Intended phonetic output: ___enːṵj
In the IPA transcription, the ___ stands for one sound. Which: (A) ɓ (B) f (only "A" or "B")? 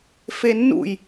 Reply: B